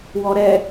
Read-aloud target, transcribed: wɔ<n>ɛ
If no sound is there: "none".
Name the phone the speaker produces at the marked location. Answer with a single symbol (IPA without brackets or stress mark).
ɾ